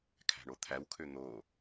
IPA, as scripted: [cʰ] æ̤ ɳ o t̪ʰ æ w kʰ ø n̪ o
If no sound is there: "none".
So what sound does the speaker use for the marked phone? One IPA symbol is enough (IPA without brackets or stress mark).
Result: kʰ